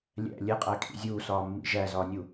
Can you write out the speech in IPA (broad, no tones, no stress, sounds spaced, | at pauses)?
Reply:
lʲ æ̰ lʲ e qʼ æ kʰ ḭ zʲ uː s ɒː mː ḭ ʒ æ z ɒː nʲ u